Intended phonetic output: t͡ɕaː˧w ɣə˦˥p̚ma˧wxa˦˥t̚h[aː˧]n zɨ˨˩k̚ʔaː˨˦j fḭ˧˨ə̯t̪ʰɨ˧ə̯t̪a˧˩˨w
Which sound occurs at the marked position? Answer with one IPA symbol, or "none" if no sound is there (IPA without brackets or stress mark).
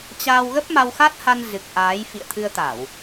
a˧